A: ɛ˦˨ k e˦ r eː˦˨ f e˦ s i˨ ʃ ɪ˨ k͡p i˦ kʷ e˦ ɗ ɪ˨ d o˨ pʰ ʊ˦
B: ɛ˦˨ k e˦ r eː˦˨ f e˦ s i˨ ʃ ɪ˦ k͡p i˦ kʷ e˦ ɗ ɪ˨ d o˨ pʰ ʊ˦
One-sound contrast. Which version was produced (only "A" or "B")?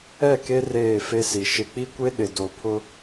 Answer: A